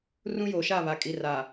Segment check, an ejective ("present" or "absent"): present